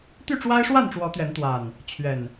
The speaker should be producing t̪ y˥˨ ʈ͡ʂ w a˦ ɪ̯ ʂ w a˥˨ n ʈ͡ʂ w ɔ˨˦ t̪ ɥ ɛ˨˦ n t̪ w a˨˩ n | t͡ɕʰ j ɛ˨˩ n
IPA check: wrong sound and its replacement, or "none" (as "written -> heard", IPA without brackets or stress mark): j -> ɥ